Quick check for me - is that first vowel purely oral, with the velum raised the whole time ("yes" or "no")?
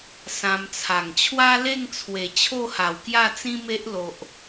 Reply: no